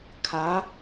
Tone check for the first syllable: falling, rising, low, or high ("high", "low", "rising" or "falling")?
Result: rising